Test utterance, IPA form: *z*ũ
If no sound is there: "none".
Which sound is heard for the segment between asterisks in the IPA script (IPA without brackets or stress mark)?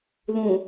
ð